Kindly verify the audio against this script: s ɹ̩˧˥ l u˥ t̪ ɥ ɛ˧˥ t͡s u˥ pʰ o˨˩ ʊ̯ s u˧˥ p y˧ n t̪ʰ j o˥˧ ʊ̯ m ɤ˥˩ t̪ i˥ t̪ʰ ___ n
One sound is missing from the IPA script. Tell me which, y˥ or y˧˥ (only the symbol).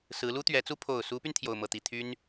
y˥